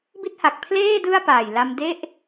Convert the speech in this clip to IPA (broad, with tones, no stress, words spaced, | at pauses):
bi˥˩t̚ha˨˩k̚ pʰleː˥˩ dɯ˥˩a̯paː˨˩j la˧m de˥˩ʔ